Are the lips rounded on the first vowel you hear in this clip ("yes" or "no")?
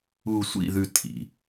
yes